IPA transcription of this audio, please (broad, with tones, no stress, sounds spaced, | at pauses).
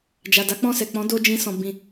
d͡ʒ a˨ d a˨˦ k͡p ɔ̃˦˨ s ɛ˨ k͡p ɔ̃˨˦ d o˦ d͡ʒ ĩ˧ s ɔ̃˨ b ĩ˨